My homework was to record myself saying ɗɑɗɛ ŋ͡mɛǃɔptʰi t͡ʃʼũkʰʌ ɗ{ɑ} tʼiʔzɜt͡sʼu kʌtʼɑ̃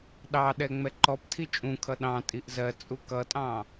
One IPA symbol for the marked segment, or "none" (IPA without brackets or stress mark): ɑ̃